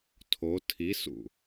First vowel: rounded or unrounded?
rounded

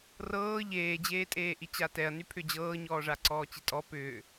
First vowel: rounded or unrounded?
unrounded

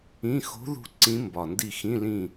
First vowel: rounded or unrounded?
unrounded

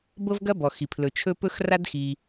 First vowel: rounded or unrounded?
unrounded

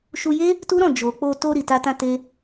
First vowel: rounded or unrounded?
rounded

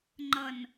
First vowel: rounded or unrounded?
unrounded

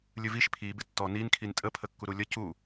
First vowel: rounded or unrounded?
unrounded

